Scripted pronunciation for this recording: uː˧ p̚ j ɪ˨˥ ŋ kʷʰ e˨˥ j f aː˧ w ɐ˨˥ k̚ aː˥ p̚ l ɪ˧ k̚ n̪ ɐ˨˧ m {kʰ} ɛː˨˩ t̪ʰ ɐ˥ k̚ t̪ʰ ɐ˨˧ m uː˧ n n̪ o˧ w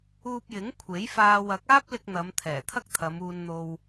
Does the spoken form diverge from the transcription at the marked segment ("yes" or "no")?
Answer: yes